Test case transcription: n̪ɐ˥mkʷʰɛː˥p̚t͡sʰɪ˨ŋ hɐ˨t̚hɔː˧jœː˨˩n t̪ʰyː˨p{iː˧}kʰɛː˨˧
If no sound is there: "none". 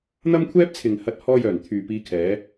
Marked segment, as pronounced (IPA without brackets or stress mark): iː˧